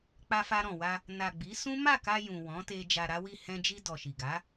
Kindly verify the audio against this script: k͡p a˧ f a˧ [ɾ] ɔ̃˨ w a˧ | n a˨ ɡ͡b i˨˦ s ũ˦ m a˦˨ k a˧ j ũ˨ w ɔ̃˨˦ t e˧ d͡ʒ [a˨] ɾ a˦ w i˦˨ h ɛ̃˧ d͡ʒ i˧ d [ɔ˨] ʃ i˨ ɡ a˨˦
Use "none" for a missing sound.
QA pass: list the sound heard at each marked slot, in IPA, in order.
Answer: ɾ, a˧, ɔ˨

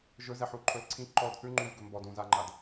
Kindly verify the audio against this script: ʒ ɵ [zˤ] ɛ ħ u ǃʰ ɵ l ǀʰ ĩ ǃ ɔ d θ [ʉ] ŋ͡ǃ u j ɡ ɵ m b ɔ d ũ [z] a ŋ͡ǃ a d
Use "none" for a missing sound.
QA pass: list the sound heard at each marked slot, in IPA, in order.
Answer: z, ʉ, z

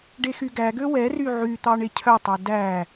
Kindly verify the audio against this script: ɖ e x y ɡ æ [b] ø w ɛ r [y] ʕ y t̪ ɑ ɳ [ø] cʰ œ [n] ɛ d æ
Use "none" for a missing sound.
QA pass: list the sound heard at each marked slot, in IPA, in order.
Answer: ɡ, y, e, tˤ

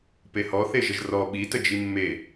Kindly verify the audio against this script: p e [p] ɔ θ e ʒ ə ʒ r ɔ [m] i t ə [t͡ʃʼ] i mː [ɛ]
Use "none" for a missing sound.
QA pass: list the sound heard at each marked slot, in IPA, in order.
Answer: h, ɓ, d͡ʒ, e

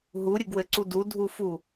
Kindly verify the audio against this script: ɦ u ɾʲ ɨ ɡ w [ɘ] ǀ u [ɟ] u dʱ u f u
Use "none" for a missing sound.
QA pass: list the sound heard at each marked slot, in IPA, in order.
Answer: ɘ, d

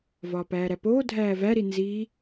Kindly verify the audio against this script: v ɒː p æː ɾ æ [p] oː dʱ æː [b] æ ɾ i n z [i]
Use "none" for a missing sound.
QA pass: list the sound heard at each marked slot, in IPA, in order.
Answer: p, v, i

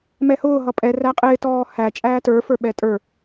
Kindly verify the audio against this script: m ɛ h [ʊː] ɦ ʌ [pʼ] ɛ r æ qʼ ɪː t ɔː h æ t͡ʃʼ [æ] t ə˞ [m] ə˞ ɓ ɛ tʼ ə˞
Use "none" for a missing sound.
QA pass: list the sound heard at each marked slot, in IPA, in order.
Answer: ʊː, pʼ, æː, f

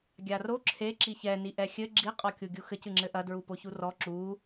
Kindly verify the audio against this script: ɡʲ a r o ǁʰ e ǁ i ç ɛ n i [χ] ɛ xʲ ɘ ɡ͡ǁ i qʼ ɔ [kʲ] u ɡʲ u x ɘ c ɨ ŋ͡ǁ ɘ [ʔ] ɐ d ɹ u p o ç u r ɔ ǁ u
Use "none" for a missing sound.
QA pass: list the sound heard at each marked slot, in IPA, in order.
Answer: ʔ, kʲ, ʔ

